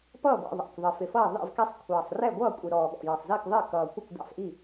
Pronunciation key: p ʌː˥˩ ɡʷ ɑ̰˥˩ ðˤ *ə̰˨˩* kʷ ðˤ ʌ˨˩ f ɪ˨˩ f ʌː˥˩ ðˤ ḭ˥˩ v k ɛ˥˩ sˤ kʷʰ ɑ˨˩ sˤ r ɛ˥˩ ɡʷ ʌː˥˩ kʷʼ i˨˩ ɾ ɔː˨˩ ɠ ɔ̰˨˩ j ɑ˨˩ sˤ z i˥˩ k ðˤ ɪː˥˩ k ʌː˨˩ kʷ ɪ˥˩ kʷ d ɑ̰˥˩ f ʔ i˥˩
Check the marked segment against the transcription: incorrect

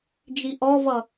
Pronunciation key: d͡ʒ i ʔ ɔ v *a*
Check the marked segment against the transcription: incorrect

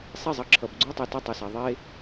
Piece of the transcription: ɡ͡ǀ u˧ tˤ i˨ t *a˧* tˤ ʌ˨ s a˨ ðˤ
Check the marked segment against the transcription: correct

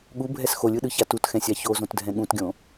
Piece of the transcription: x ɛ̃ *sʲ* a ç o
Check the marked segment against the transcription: correct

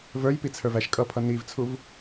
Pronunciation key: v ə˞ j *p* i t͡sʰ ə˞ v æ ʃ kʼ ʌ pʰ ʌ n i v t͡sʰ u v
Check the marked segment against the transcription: correct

